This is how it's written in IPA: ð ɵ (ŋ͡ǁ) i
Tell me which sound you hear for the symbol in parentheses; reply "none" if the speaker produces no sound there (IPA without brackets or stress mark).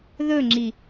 ŋ͡ǁ